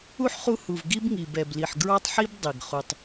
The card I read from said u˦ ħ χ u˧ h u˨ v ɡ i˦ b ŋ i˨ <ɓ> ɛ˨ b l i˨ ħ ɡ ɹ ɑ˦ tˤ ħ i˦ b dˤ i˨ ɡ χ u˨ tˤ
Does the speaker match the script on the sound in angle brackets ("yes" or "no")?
no